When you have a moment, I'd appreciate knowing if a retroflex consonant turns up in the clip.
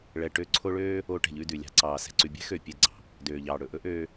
yes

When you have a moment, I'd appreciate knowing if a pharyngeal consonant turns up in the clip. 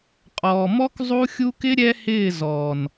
no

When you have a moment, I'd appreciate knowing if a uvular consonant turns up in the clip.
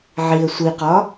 yes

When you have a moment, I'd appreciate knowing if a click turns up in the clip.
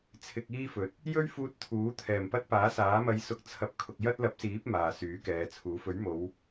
no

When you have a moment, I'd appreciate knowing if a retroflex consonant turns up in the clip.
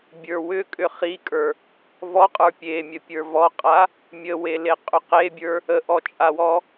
no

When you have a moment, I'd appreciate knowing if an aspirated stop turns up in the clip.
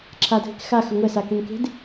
yes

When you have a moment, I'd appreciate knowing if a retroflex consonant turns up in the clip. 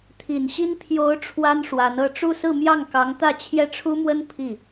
yes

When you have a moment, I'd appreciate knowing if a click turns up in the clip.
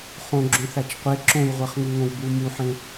yes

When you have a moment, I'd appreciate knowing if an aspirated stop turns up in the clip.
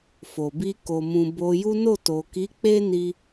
no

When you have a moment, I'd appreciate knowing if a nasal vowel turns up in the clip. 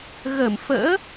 no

